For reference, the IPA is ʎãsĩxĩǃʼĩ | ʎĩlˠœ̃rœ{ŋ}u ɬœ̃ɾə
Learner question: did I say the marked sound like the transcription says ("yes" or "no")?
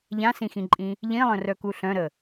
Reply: no